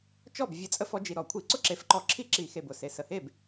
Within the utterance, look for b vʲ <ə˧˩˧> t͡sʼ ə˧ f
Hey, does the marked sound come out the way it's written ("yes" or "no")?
yes